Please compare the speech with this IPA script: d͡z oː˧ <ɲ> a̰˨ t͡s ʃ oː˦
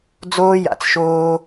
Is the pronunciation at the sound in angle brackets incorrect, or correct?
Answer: incorrect